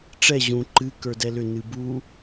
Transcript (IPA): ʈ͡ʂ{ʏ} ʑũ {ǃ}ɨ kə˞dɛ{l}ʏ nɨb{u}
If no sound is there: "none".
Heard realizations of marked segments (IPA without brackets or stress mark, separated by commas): ɛ, ǃ, l, u